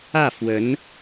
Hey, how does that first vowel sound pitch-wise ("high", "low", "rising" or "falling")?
falling